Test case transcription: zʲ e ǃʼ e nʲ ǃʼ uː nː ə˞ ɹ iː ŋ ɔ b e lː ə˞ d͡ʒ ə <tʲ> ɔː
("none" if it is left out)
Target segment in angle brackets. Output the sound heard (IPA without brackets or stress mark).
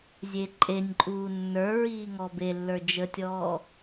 tʲ